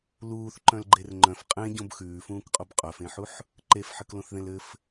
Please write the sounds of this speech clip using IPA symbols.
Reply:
luːθǃœ̃lɡ͡ǃer ŋ͡ǃœ̃f qʼẽɟõb xʉːfũːkqʼob qʼœfẽħuħ | ǃefħɘklõθðẽl ɘf

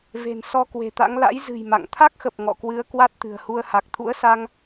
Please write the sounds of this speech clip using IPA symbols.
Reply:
ve̤˨˩nsɔ˧kwe̤˨˩t̪a̰˧˥ŋ la̰˧˥j zɨ̤˨˩j ma̰˧˨ŋ t̪ʰa˦˥k̚xə˨˩p̚ ŋɔ̰˧˨kwɨ˨˦ə̯ kwa˦˥t̚t̪ɨ̤˨˩ə̯hu˧ə̯ ha˨˩k̚t̪ʰṵ˧˥ə̯sa˧ŋ

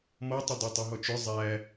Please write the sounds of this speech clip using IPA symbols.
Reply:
mɔtˤə dˤætˤiɦɔt͡ʃʊ zˤæ

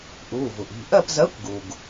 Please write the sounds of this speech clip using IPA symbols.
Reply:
ʔuː˩˧˩vu˩ʔ i̤˩˧˩ ʔɜ˦˨pzɜ˨˥kʷɡu˩ɡ

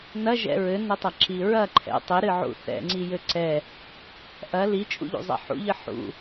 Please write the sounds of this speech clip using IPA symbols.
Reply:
nɐʒɛ̰ ɹɘnɘtˤɐǁi ɹɐ ǃʰɛ̰ tˤɘɾɨʕṵ θɛ̰ŋ͡ǀijɘ ǀɛ | ʔɐ lit͡ʃʼṵʎṵzˤɛ̰ ħṵʎɨ ħṵ

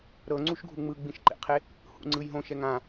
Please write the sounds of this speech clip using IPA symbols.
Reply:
ɾɤ ŋ͡ǀuʃɡʱu ŋ͡mɯɡ͡bĩʃǃḛqʰe | hṵŋ͡ǀɯjɦõ ʃɛŋã

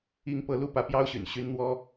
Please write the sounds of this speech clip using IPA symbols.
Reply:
i˥ŋpɤ˧˥ lu˥˩pä˧˥pjɑ˥ʊ̯ɕy̰˨˩n ɕy˥n n̪wɔ˥

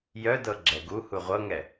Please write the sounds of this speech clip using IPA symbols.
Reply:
jœdɤ ɡ͡ǁɛɡu huʁʷɤŋɛ

